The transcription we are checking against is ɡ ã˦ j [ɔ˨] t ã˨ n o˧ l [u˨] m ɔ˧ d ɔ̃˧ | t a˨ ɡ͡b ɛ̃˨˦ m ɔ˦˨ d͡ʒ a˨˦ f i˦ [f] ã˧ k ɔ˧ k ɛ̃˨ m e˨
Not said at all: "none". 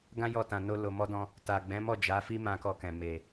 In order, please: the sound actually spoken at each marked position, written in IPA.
ɔ˧, o˨, m

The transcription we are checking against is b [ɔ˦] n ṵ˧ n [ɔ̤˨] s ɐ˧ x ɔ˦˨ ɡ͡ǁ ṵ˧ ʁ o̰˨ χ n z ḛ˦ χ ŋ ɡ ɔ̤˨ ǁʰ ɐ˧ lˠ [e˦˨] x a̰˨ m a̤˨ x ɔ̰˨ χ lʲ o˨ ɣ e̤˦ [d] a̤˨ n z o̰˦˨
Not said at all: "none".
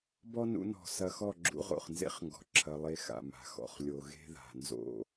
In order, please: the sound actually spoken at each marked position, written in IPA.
ɔ˦, ɔ̤˨, e˧, ð

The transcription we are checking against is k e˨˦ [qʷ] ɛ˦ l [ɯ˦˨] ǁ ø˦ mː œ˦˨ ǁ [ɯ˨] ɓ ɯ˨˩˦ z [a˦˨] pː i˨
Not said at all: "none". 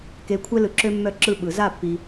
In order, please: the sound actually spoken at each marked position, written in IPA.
kʷʰ, ɯ˨, ɯ˦˨, a˦˨

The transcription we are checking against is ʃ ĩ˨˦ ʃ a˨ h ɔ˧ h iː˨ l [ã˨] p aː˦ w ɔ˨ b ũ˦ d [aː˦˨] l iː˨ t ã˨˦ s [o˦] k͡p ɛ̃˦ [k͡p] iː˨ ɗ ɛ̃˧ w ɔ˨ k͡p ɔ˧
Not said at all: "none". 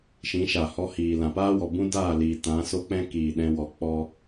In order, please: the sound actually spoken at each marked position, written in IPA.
ã˨, aː˦˨, o˦, k

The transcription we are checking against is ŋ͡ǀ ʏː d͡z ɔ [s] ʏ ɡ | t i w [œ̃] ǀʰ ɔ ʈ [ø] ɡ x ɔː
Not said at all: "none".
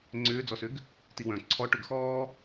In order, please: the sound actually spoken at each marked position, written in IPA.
s, œ̃, ø

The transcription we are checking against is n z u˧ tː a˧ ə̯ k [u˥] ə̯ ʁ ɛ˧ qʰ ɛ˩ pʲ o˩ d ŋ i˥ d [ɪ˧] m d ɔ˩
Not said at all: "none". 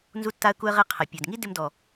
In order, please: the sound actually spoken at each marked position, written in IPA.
u˧, ɪ˧

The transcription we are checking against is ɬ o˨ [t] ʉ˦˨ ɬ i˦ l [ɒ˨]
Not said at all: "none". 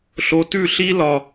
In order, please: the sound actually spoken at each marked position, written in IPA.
t, ɒ˨

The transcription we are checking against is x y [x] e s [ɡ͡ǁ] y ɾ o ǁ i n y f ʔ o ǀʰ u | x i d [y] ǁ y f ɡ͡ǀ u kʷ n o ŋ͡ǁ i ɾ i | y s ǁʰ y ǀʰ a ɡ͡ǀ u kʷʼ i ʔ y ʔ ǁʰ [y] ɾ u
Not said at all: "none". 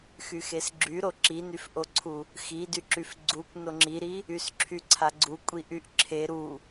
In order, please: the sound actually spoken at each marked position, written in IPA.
x, ɡ͡ǁ, y, e

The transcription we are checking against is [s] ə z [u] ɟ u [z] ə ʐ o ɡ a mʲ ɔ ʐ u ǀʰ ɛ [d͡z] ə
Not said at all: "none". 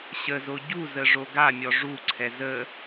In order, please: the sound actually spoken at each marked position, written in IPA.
ɕ, o, z, z

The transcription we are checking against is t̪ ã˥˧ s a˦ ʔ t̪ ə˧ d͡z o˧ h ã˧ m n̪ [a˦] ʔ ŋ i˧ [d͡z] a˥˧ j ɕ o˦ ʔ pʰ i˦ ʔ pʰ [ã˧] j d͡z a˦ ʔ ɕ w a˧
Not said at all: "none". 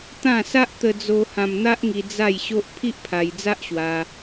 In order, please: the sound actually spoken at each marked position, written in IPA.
a˦, d͡z, a˧

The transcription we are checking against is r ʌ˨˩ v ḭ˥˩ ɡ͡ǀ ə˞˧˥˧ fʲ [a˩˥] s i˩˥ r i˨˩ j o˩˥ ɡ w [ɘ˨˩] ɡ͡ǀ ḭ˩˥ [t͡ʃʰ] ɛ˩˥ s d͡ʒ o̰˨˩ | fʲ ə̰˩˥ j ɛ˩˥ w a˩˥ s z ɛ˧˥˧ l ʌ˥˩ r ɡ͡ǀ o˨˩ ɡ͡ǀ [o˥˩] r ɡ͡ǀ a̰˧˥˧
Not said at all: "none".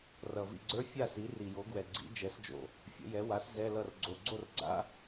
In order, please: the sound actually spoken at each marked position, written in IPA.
a˥˩, ɛ˨˩, d͡ʒ, o˥˩

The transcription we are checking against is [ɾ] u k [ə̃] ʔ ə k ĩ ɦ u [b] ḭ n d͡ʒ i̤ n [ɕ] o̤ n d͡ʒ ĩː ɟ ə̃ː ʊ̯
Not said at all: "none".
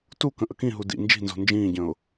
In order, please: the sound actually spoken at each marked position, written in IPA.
t, ə̃, d, z

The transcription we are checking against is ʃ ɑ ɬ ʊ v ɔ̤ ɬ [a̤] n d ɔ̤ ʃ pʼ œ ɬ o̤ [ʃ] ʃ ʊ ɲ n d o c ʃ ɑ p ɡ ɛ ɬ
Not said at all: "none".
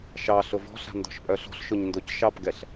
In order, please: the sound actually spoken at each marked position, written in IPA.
a̤, ɬ

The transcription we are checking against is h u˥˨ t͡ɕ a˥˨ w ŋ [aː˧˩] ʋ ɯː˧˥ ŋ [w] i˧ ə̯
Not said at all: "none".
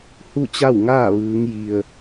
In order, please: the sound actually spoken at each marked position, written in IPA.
aː˥˨, j

